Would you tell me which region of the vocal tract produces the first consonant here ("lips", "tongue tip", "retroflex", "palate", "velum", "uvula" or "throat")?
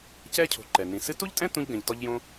palate